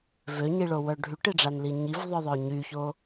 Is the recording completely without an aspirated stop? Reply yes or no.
yes